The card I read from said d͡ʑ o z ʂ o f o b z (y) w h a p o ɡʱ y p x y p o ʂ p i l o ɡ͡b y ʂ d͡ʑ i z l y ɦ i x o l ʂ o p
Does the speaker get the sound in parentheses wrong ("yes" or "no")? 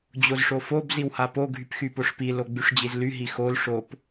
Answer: yes